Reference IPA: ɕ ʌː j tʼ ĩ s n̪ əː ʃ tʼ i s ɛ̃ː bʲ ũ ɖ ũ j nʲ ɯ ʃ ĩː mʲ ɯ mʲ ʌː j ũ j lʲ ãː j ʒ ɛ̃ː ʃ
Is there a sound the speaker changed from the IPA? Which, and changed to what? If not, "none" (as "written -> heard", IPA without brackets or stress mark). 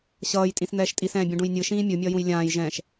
əː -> ɛː